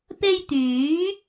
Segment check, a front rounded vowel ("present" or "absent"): present